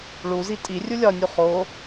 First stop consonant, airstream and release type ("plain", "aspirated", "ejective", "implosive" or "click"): ejective